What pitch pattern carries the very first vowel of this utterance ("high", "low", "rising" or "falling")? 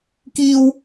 high